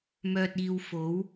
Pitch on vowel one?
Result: low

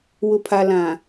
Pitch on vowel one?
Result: low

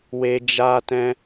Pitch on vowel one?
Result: high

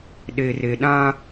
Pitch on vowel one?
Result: low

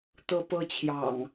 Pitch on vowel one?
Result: high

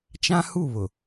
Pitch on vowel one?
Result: high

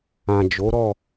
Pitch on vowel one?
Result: low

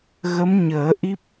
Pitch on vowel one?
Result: rising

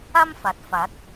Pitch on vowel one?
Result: high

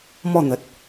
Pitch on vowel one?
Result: falling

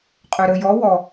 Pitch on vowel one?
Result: low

